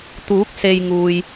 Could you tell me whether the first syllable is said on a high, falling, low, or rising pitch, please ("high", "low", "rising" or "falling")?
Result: rising